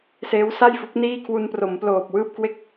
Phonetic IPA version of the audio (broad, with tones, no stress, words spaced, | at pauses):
seː˦˥wsa˥˩jfu˦˥k̚ niː˥˩kʰwu˧npro˩˦m ploː˨˩p̚wɯː˥˩p̚kwe˥˩k̚